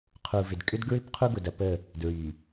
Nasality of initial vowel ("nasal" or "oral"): oral